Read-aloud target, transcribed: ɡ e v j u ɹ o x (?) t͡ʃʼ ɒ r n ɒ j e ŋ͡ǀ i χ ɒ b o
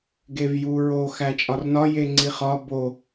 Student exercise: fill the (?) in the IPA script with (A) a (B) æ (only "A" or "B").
B